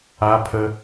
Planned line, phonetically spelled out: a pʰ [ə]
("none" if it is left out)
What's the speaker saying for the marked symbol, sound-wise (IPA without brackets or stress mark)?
ə